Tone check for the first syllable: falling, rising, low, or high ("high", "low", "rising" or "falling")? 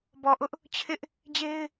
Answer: low